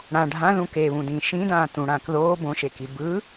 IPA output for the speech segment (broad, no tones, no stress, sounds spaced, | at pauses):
ɽ ã ɖʱ ã ð ũ k e β ũ d ĩ ʃ ĩ d ãː t ũ ɽ ãː k ð oː b õ ʃ e k i b ɯ